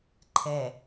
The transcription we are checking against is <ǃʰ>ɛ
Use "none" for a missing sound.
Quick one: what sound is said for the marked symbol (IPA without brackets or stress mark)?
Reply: ǃʰ